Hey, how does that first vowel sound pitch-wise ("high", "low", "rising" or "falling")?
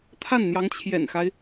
falling